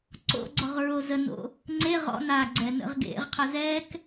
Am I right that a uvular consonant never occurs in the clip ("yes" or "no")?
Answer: no